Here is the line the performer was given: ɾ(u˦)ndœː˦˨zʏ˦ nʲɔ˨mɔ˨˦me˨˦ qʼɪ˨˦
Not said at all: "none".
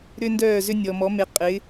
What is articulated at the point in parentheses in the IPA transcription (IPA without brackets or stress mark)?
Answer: ʏ˦